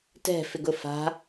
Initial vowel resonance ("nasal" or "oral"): oral